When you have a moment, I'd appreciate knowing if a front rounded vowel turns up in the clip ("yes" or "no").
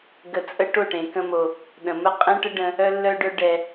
yes